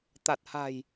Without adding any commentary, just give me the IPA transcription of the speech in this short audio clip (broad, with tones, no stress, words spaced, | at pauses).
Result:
t̪a˨˩t̚ha̤˨˩j